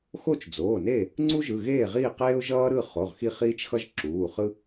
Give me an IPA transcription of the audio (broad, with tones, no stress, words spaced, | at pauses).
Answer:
xo˥˨t͡ʃd͡zoː˩˧˩ne˥˨ | ŋ͡ǀu˥ʒɯ˩˧˩ɣeː˥˨ ʁiː˥˨qeː˥ʊ̯ ʒʌː˥ɾɯ˥˨χo˩˧˩ʁ xi˥˨χiː˥t͡ʃxʌ˥ʒ ǁuː˩˧˩χɯ˥